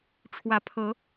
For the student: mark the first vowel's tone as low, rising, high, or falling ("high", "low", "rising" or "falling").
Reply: rising